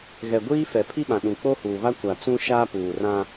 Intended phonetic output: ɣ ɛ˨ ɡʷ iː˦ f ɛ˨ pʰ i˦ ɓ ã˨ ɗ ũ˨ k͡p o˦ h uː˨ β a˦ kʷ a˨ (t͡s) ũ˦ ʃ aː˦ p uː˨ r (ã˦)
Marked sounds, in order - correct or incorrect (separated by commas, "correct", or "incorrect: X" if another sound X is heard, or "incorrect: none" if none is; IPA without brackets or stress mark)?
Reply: correct, correct